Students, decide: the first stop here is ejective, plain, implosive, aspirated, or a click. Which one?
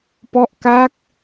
plain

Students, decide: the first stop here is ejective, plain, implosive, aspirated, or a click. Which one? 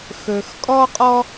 ejective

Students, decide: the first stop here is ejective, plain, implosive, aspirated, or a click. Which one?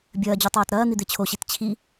plain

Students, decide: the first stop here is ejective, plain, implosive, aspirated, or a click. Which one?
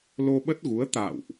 implosive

